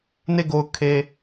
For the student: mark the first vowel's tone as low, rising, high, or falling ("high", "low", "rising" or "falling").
falling